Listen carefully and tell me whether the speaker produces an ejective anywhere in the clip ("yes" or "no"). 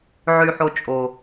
yes